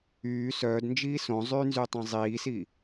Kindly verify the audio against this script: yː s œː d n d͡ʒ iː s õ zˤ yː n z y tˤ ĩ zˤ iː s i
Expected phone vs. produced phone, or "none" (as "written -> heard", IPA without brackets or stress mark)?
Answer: none